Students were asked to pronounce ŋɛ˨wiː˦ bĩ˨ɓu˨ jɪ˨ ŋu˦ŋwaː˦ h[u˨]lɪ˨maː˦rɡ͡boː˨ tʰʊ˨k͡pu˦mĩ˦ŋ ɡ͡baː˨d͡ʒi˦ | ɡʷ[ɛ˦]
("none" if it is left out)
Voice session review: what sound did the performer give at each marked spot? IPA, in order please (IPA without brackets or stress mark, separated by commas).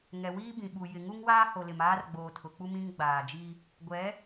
o˨, ɛ˨˦